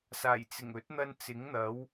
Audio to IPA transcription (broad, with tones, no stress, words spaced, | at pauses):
saː˨˩jt͡sɪ˨˩ŋɵ˨˥t̚n̪ɐ˧n t͡sɪ˨˥ŋn̪ɐ˨˥w